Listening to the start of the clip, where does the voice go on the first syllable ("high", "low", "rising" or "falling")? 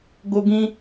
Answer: high